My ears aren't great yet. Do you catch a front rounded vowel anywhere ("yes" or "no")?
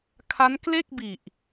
no